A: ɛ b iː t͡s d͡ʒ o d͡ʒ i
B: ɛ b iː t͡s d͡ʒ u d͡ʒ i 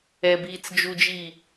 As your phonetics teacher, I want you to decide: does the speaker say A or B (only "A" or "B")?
B